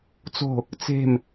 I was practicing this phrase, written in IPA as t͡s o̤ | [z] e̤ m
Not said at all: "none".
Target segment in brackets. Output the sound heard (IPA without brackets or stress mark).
t͡s